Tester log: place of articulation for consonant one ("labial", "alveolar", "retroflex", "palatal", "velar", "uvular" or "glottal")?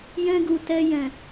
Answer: palatal